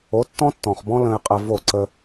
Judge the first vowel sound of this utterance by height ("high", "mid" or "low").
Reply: mid